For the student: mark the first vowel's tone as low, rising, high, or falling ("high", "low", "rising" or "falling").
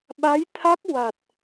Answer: rising